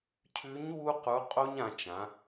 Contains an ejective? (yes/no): yes